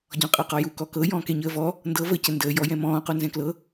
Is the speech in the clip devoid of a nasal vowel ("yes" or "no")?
no